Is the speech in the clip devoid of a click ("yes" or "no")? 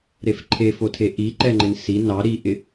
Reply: no